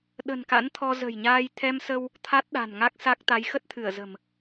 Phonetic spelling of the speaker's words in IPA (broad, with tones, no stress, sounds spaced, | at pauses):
ɗ ə̤˨˩ n k a̰˧˥ n t̪ʰ ɔ˧ z ə̤˨˩ j ɲ aː˧ j t̪ʰ ɛ˧ m s ə˧ w | t̪ʰ a˦˥ t̚ ɗ a̤˨˩ n ŋ a˦˥ k̚ s a˦˥ k̚ t̪ a˨˦ j x ə˦˥ t̚ t̪ʰ ɨ˧˩ ə̯ z ə̤˨˩ m